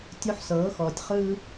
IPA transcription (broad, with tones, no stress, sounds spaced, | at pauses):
tʲ o˦ ħ s ɤː˨˦ x ɔː˨ tʲ χ ɯː˦